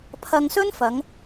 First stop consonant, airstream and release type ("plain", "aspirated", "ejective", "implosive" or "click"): aspirated